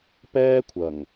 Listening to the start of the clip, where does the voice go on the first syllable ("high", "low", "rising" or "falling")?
high